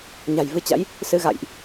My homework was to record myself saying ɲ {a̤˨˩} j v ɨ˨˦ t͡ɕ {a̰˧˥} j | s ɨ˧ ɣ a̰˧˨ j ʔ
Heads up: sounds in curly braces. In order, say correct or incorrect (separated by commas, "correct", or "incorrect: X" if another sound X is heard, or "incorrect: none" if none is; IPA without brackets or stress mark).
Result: correct, correct